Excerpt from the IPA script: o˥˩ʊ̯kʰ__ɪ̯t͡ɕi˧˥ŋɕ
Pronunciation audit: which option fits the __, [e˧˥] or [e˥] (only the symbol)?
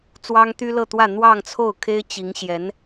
e˥